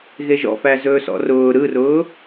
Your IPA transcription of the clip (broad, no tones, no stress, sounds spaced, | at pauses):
ɣ e ʒ ɔ̰ f æ z ɵː s ɔ̰ r ʊː ɾ ɯ r ʊː